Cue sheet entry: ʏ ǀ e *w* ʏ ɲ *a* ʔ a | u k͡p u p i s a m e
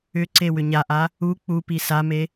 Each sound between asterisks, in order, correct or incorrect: correct, correct

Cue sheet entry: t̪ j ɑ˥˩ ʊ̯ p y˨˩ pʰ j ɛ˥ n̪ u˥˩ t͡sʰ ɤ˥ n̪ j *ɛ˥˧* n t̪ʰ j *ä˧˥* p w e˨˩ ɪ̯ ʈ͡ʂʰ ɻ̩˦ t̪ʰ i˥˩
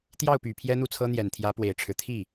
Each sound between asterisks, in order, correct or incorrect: incorrect: ɛ˨˩, correct

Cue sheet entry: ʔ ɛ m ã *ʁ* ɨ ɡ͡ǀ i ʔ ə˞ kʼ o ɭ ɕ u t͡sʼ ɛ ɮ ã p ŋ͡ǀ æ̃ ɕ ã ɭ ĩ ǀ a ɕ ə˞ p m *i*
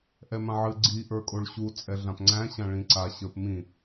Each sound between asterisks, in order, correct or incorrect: incorrect: ʕ, incorrect: ĩ

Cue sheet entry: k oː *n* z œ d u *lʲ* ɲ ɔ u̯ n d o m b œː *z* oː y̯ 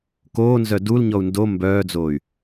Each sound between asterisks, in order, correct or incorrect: correct, incorrect: l, incorrect: d͡z

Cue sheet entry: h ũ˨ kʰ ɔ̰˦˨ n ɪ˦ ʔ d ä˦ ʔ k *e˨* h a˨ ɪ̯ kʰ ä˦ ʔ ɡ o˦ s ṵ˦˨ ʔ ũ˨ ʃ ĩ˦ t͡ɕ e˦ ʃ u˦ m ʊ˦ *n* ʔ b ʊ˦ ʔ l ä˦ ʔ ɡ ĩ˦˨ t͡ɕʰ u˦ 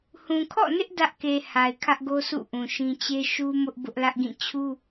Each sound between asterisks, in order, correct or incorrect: correct, incorrect: none

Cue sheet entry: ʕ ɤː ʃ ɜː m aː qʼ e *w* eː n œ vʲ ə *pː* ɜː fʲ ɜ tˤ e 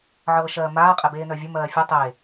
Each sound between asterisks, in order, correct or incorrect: incorrect: b, incorrect: m

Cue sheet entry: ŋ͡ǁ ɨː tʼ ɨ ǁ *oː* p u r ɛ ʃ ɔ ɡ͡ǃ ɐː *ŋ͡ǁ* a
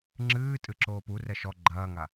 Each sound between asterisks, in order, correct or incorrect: correct, incorrect: ŋ

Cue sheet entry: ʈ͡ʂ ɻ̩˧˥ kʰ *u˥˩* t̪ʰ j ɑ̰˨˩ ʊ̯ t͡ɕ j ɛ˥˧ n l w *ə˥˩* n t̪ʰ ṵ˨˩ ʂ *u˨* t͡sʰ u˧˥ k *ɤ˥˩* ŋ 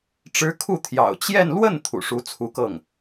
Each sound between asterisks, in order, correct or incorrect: correct, correct, incorrect: u˧˥, correct

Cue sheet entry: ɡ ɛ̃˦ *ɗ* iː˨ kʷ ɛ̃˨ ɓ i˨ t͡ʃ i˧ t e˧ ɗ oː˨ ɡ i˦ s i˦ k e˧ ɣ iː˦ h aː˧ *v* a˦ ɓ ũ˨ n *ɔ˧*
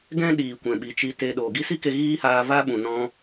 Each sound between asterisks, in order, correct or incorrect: correct, correct, incorrect: ɔ̃˧

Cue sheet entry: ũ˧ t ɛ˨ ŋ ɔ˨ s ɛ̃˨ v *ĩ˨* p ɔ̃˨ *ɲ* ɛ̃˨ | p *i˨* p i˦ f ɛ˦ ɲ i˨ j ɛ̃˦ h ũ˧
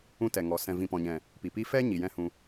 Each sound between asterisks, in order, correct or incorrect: correct, correct, correct

